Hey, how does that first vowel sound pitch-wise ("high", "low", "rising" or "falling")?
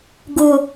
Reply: low